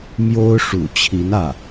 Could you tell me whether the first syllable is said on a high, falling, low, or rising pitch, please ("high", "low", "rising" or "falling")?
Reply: high